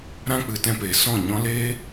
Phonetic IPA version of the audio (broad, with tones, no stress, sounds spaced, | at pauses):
ɾ ã˦ k͡p ɨ˨˦ t ɛ̃˧ p eː˨ s ɔ̃˦˨ ɲ ɔ̃˦ l eː˦